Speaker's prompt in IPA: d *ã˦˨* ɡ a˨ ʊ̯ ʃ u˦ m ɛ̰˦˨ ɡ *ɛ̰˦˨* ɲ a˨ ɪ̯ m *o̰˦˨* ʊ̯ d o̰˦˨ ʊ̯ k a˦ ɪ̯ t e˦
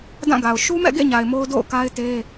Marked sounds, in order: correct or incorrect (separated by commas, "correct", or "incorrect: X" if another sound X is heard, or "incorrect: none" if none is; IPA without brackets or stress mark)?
correct, incorrect: ḛ˦˨, incorrect: o˦